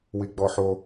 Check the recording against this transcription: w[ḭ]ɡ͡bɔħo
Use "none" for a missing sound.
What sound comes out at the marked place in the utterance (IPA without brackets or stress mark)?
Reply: i